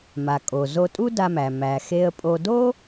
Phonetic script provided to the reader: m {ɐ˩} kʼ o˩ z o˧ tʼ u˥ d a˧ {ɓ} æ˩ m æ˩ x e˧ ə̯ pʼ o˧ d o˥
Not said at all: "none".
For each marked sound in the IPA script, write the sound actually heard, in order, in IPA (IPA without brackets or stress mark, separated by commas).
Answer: a˩, m